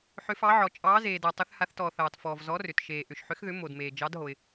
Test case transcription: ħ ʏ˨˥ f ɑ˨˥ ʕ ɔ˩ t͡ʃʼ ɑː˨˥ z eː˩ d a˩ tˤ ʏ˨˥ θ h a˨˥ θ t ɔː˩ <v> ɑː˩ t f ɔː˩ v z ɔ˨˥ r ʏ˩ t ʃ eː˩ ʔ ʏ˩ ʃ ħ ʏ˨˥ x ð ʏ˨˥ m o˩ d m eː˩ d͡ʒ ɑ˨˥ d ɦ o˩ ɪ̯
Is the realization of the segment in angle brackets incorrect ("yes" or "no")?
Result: yes